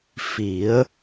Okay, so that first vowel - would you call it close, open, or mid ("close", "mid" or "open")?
close